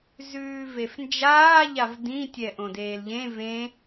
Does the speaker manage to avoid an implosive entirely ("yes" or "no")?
yes